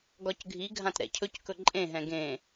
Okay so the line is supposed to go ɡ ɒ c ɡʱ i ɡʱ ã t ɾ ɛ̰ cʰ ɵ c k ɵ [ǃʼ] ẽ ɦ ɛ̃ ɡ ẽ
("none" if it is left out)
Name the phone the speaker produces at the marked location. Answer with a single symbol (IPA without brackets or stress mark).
ǃʼ